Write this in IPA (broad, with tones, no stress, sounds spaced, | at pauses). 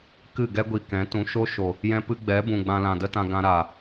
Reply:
k ɨ˦˨ ɡ ɛ˦ ɡʷ i˧ k ɛ̃˨˦ t ũ˨˦ ʃ o˦ ʃ o˨ | j ɛ̃˧ p ɨ˧ ɡ͡b ɛ˨˦ b ũ˨ ɡ͡b ã˧ l ã˨ d ə˦ t ã˧ ɡ ã˧ ɾ aː˨